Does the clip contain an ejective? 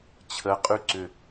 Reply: yes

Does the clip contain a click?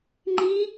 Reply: yes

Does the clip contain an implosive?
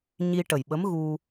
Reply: yes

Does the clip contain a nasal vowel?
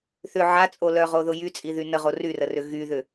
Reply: no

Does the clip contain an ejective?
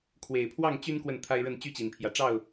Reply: no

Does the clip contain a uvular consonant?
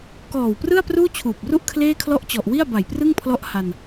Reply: no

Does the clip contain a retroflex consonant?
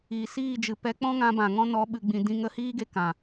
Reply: no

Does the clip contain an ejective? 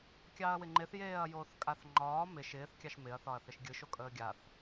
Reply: yes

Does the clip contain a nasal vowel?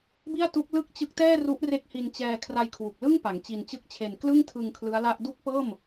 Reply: no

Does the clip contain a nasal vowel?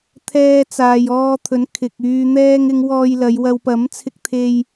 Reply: no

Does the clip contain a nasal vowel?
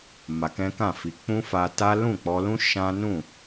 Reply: yes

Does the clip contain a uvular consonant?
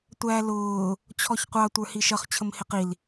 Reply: yes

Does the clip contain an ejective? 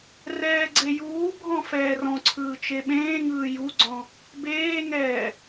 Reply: no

